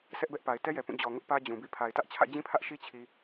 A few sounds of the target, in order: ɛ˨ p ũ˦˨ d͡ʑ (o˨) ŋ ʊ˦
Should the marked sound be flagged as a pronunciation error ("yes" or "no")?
yes